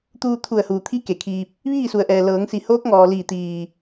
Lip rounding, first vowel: rounded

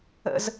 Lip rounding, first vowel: unrounded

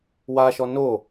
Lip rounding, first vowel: unrounded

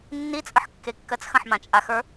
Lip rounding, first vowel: unrounded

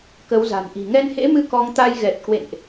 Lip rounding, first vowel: unrounded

